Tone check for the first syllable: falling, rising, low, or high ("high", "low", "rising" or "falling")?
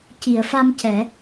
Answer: low